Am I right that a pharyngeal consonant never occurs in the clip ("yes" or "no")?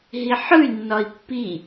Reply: no